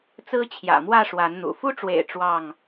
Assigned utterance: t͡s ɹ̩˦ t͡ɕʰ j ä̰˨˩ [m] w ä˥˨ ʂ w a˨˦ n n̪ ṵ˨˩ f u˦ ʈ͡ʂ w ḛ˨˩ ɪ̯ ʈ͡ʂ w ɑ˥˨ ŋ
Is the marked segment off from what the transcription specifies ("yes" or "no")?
no